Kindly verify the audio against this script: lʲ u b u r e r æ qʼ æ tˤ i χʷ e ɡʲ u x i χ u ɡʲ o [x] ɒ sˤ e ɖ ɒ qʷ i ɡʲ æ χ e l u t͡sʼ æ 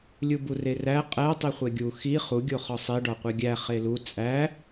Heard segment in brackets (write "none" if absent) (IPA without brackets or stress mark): χ